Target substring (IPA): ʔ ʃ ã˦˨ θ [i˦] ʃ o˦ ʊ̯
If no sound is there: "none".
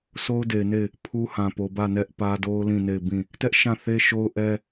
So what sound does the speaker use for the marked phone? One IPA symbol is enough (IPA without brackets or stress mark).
e˦